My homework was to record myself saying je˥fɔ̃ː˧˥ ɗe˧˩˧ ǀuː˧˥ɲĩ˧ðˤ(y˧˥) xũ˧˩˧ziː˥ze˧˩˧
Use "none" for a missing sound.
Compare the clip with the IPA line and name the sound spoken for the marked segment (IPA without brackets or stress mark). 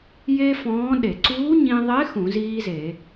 e˧˥